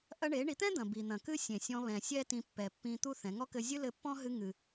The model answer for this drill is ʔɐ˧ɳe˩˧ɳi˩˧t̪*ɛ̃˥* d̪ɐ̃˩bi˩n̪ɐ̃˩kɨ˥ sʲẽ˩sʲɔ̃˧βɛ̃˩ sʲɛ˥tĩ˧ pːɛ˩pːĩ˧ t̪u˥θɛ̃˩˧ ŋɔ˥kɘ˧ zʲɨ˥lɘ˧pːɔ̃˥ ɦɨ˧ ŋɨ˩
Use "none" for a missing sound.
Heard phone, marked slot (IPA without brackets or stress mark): ɛ̃˥